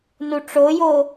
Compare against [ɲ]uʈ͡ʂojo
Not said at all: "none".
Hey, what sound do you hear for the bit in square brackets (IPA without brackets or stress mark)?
n